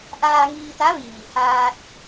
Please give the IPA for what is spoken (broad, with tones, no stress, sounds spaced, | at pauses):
ʔ aː˧ ŋ iː˧ t̪ a˧˥ ʋ iː˩ h aː˧ t̚